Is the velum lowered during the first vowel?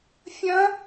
yes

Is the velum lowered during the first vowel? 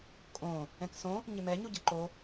yes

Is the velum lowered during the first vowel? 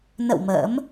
no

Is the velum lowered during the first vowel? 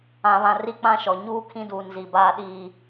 yes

